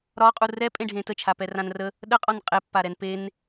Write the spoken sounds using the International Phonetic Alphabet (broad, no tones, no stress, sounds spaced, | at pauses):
ɾ ɒ qʼ u r ɛ pʼ ẽ ɖʱ ẽ t ə t͡ʃʰ a p ɛ r ã n r ə | ɗ ə qʼ ɒ n qʼ e pː a ɾ ɛ n p e n